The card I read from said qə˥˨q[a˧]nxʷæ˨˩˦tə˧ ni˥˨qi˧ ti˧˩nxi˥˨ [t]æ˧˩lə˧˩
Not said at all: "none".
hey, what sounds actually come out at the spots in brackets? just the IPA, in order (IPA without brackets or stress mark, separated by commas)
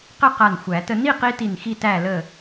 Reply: a˧˩, t